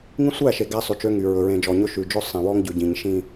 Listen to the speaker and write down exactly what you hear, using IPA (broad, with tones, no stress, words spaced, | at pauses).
ŋĩ˦sʷæ˦˨ʃe˨ ɡæ˦sˤʉ˨t͡ʃø˦ŋy˨ ɹɵ˨ɹẽ˨d͡ʒɔ˨ɲɵ˦ ʃʉ˨d͡ʒɵ˦ sˤẽ˨ wɔ˦ŋɟʉ˨ɟĩ˨ɲ ʃĩ˦